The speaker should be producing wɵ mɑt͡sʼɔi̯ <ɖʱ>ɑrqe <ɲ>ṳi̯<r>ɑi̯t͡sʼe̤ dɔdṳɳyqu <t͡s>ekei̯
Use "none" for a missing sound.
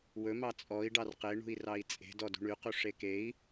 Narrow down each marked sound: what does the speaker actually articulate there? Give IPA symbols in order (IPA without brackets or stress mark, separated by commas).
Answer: ɖ, ɳ, r, ʂ